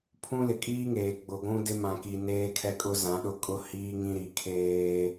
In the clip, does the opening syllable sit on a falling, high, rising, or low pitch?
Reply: high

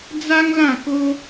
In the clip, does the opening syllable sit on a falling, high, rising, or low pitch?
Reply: high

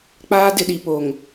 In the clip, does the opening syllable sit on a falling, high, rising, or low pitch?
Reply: high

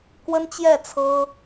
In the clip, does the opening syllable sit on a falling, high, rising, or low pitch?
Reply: high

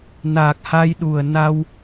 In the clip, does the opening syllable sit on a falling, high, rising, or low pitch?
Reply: low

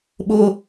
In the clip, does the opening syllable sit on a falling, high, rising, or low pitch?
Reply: high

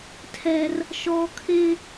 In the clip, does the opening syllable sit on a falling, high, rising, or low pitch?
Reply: high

